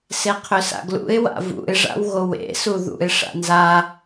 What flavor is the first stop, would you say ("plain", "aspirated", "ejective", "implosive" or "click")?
aspirated